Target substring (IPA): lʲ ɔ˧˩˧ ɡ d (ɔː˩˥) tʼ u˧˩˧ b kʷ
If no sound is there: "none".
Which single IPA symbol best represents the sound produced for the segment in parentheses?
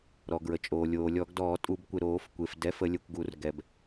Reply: ɔː˧˩˧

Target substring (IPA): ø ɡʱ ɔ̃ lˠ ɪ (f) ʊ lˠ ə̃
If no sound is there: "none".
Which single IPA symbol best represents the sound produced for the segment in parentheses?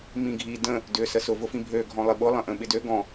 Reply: ɓ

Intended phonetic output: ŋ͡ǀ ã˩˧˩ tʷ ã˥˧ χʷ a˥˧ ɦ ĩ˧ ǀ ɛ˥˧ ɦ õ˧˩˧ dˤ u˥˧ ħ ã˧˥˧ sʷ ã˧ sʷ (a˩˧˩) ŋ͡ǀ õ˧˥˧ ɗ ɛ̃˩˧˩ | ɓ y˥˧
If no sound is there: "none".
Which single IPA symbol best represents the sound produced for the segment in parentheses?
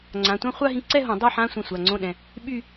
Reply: a˩˧˩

